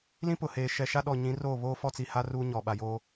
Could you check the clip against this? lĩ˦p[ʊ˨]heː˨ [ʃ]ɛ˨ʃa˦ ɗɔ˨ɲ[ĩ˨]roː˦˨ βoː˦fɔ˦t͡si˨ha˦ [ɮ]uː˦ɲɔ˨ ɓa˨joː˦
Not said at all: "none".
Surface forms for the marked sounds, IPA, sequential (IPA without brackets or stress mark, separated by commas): ʊ˨, ʃ, ĩ˨˦, r